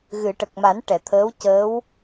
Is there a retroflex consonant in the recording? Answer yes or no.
yes